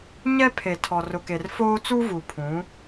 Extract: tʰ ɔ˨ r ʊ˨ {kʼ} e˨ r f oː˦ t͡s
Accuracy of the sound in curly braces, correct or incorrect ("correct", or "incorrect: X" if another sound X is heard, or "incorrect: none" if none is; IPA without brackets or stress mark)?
incorrect: k